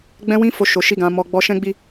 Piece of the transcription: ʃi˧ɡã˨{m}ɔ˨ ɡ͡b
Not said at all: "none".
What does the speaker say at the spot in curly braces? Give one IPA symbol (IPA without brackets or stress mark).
m